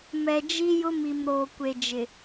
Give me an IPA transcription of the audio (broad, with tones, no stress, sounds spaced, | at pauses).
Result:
m ɛ˨ d͡ʒ i˦ j ʊ˦ m i˨ m ɾ oː˨ kʷ e˨ d͡ʒ ɪ˨